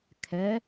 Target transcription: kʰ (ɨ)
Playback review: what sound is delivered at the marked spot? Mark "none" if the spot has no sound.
ɛ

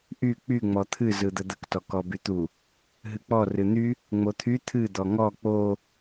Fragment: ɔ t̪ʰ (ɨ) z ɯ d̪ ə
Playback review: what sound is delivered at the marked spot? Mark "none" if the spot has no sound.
ɨ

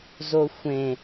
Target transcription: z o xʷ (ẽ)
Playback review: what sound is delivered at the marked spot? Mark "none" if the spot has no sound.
ẽ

